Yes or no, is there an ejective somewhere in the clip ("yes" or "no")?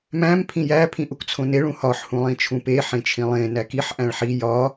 no